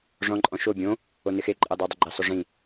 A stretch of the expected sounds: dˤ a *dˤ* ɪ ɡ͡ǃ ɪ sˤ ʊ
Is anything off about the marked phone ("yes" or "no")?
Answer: no